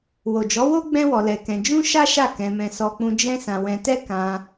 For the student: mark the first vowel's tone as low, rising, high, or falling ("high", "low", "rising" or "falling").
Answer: low